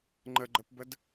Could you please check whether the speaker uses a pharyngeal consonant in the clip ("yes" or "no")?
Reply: no